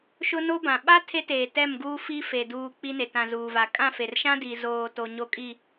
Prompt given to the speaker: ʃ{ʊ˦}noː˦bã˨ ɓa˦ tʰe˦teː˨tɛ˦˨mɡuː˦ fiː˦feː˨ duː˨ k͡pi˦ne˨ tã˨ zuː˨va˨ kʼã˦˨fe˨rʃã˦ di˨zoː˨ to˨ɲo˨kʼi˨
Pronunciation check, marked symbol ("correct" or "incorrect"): correct